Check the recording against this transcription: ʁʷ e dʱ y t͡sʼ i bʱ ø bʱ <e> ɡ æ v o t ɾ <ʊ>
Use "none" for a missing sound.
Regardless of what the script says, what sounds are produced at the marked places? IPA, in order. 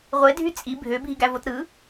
i, ɯ

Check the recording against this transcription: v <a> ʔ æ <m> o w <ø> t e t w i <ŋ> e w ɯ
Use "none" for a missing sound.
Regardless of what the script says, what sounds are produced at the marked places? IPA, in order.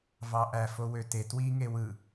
ɑ, f, ø, ŋ

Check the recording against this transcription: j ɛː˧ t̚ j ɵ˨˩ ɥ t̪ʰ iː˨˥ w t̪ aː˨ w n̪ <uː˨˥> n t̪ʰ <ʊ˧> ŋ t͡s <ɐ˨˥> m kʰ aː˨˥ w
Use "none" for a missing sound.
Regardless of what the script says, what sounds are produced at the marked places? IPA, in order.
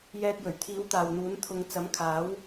uː˨˥, ʊ˧, ɐ˨˥

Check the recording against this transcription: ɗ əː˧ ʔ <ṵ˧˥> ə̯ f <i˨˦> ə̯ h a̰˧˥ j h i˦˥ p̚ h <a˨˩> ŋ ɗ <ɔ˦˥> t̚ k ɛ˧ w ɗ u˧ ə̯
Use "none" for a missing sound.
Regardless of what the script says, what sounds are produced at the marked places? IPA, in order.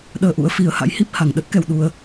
ṵ˧˥, i˨˦, a˨˩, ə˦˥

